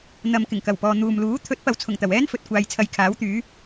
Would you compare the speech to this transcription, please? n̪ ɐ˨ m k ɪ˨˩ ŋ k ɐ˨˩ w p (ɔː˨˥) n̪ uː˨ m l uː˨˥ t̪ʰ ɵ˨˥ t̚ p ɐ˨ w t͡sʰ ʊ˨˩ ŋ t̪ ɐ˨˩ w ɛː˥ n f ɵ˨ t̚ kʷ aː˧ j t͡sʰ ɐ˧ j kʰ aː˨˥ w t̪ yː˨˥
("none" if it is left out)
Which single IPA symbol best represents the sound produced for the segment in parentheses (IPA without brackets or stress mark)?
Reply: ɔː˨